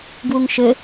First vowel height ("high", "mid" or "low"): high